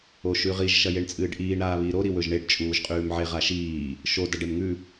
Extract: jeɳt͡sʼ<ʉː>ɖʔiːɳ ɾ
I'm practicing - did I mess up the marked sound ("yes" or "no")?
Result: yes